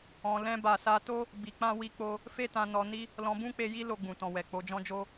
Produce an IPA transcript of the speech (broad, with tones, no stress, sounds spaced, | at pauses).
ɔ̃˧ l ɛ̃˧ b a˨ s a˧ t o˦ | b i˧ k͡p ã˦ w i˧ k͡p o˧ | f e˦ t ã˧ n ɔ˧ n i˦ | l ɔ̃˧ b ũ˦ k͡p e˧ j i˦ l o˧ ɡ͡b ũ˨ t ɔ̃˨ w ɛ˨ k͡p o˧ d͡ʒ ɔ̃˦ d͡ʒ o˦